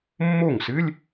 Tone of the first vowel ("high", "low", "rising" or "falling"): falling